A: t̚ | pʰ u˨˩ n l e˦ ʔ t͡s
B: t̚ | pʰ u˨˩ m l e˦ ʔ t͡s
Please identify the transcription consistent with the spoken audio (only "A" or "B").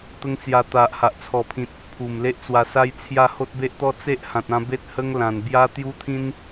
B